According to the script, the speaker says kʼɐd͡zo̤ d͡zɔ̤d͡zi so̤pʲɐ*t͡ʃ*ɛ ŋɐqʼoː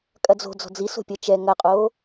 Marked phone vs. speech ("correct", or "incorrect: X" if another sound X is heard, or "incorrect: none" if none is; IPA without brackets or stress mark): correct